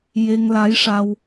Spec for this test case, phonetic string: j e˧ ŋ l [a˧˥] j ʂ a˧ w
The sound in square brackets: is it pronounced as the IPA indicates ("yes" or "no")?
yes